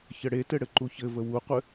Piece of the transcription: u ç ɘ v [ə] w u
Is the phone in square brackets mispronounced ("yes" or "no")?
no